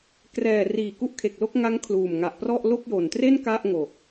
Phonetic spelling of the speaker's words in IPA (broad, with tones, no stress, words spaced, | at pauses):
krɛː˨˩ riː˨˩ku˦˥ʔkʰe˨˩k̚lo˥˩k̚ ŋa˦˥ŋ kʰluː˨˩mŋa˨˩ʔprɔ˥˩ʔ lo˥˩k̚jo˨˩ntre˥˩n ka˥˩ʔŋo˨˩k̚